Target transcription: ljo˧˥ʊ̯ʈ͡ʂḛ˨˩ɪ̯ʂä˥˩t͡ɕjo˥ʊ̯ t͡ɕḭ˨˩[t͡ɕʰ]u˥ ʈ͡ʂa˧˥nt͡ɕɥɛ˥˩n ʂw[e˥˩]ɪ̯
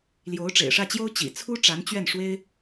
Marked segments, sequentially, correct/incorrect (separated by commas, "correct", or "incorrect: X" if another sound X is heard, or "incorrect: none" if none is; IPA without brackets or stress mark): incorrect: t͡sʰ, incorrect: e˥